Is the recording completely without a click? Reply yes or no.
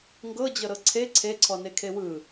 no